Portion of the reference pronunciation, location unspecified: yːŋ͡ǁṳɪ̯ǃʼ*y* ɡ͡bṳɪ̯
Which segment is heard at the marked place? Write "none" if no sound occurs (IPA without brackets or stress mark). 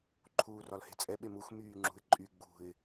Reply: y